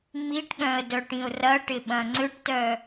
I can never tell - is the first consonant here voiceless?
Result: no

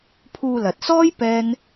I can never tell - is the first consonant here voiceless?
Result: yes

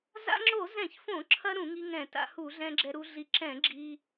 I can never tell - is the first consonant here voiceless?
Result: no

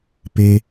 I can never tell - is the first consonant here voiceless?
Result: yes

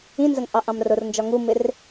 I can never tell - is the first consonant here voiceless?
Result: no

